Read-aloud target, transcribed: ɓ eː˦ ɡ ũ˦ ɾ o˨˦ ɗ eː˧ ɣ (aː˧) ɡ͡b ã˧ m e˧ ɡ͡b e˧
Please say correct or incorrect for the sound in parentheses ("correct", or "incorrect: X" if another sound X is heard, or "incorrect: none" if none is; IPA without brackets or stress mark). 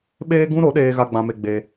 incorrect: a˧